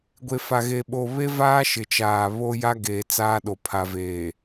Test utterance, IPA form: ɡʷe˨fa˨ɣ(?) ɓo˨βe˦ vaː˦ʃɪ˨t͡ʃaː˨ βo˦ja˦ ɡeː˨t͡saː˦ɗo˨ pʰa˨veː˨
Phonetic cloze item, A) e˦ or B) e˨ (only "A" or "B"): B